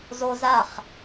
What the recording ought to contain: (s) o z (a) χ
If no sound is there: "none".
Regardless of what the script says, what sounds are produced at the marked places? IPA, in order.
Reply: z, a

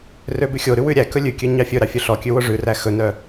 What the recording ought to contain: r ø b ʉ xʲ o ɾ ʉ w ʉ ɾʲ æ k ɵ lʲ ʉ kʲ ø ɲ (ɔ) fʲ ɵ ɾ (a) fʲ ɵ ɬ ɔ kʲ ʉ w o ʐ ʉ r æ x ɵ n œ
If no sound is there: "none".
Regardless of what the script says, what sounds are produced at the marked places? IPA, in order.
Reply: ɑ, ɑ

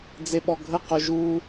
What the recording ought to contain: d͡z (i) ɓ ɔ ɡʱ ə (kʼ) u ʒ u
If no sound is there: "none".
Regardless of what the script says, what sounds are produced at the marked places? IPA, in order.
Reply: e, q

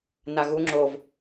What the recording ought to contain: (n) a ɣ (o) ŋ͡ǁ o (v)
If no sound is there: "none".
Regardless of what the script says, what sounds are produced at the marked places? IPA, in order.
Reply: n, u, v

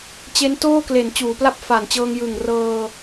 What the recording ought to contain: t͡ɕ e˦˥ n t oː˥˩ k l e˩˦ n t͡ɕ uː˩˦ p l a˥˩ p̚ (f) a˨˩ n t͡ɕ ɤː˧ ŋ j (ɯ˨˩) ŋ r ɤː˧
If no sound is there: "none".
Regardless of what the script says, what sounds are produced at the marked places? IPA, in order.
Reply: f, ɯ˨˩

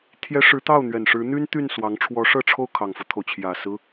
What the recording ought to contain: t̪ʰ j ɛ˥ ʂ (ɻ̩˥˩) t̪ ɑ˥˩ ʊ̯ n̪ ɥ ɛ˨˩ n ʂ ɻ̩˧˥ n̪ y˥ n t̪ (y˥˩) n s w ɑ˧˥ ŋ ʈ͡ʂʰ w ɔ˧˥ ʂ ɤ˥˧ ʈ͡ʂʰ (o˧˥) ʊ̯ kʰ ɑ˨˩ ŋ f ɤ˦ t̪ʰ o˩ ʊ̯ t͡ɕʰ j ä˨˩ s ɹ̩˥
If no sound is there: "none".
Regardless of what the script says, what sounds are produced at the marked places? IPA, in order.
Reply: ɻ̩˧˥, y˥˩, o˥˩

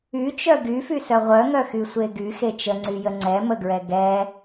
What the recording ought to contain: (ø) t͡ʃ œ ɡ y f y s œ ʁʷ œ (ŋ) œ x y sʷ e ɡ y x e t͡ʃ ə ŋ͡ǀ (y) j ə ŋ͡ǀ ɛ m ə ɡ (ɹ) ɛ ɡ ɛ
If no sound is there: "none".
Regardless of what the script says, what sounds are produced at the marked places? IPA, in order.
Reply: y, ŋ, y, ɹ

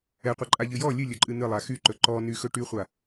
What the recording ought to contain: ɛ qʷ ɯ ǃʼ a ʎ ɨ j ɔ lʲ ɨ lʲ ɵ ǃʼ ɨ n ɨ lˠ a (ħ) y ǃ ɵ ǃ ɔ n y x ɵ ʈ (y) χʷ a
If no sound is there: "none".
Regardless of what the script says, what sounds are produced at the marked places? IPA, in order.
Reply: x, y

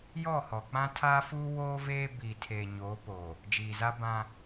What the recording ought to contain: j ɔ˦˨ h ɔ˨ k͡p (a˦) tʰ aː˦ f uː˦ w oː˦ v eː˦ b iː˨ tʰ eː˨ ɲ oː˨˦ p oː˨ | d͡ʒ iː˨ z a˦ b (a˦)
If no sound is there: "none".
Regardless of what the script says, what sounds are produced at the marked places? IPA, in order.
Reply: ã˦, ã˦

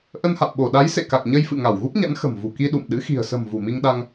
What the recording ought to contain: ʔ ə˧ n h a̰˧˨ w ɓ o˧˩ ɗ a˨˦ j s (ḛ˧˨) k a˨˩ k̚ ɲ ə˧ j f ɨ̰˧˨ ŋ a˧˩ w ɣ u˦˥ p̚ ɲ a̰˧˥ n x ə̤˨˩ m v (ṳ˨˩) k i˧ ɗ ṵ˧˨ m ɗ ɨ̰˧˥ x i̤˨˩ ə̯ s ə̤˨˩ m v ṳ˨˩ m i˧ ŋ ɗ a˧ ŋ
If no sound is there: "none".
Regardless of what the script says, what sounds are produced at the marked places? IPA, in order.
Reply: ḛ˧˨, ṳ˨˩

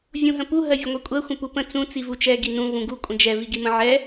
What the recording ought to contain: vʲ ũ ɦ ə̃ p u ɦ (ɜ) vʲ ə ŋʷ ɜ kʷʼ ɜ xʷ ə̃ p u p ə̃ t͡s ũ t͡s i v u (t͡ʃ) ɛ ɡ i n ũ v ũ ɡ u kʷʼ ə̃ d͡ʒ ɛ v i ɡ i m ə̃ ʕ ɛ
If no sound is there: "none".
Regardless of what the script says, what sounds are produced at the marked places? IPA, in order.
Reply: ɜ, t͡ʃ

